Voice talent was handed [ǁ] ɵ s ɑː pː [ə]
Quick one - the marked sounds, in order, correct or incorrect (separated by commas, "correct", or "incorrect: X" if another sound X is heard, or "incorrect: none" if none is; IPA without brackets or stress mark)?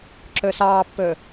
correct, incorrect: ɵ